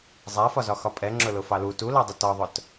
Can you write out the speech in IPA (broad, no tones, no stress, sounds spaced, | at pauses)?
zˤ æ f ɒ z ɒ x ɒ pʼ ɛ ŋ͡ǁ ʊ l ʊ f ɑ l u t u l ɑ dˤ ʊ t ɒ ðˤ ʊ t